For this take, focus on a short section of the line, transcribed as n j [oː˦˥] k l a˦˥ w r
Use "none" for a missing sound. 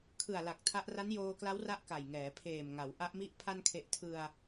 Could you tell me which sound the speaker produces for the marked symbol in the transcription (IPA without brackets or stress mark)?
oː˧